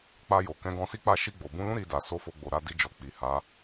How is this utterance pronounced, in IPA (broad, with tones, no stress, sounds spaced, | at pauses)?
k͡p a˧ j o˨ k ɛ̃˨˦ ɡ ɔ̃˧ s i˦ k͡p a˦˨ ʃ i˧ ɡ͡b o˨ b ũ˧ l ũ˦ ɾ i˧ d a˨ s o˧ f o˧ ɡ͡b o˨ ɾ a˧ d i˧ d͡ʒ ɔ˨ k͡p i˨ h a˨˦